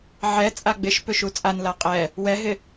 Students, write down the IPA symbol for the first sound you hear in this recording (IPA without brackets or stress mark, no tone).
ʕ